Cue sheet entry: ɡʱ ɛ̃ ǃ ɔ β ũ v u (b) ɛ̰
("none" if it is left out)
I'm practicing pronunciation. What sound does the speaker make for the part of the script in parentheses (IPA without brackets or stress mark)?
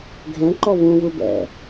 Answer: b